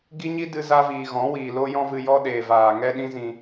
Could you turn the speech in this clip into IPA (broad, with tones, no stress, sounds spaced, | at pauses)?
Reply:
ɡ i˦ ɲ i˦ d ɨ˧ z a˧ v iː˨ ɣ ɔ̃˨˦ w iː˨ l o˦ j ɔ̃˦ v ɨ˧ j ɔ˦ ɗ eː˨ v aː˨ ŋ ɛ˦ ɗ ĩ˦ z ĩ˧